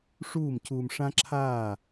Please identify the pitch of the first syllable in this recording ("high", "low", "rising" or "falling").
falling